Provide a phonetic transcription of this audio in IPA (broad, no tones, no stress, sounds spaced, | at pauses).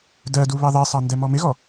d ɜ d u β ɛ ðˤ i sˤ ɑ n d ɛ m ɔ m ɪ ɣ ɔ